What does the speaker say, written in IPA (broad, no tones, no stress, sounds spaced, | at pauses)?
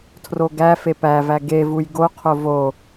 tʰ r o ɡ æ f e p æ v æ ɡ e v u j ɡ o qʰ o v o